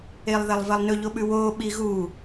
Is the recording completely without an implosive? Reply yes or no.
no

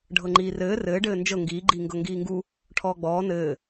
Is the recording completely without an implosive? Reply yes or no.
yes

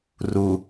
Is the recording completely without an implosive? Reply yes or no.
yes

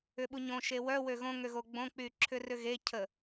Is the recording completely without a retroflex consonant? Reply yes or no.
yes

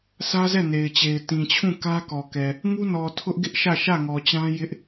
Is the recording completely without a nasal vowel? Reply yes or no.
no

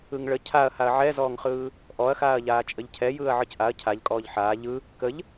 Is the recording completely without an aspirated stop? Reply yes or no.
no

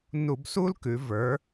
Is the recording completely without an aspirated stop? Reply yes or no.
yes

